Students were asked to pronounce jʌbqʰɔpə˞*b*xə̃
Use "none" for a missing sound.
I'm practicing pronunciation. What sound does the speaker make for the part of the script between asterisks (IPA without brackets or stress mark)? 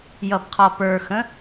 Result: none